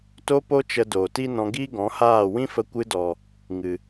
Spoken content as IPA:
t o˧ p o˧ t͡ʃ ə˨ d oː˨ t i˦ n ɔ̃˧ ɡ iː˦ ɡ ɔ̃˨˦ h aː˦˨ w ĩ˦ f ə˧ kʷ ɨ˧ d ɔ˨ | ŋ ɨ˨

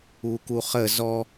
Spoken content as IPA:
u k u χ ə z ɔ

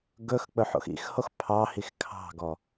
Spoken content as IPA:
ɡ ɵ x k͡p ɵ ħ o̰ x ḭ x h o x pʰ ɑ h i x kʰ ɑ̤ ɡ ɔ

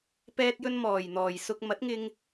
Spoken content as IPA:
p ɛː˧ t̚ j ɵ˧ n m ɔː˨˩ j n̪ ɔː˨˩ j s ʊ˧ k̚ m ɐ˨˥ t̚ ŋ ɪ˧ ŋ

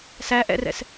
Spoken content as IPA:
s æ ʔ ɛ̰ r ɛ̰ s

